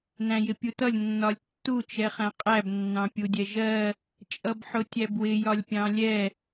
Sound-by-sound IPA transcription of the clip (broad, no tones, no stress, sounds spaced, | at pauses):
n æ̃ j ɪ pʲ u t ʌ lʲ nː ɒ lʲ tː u t͡ʃ ɛ χ æ̃ qʼ æ b nː ɑ̃ pʲ u dʲ ɛ ʒ ɜ | t͡ʃʼ ʌ b ħ ʊ tʲ æ b w ɪ j ɒ lʲ pʲ ɑ̃ lʲ ɛ